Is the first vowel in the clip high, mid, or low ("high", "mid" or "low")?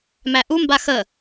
low